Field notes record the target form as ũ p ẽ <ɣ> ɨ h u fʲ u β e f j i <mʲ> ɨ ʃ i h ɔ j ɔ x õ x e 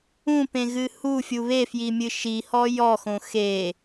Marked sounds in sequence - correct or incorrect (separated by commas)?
correct, correct